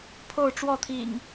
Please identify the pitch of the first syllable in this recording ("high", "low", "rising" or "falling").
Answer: falling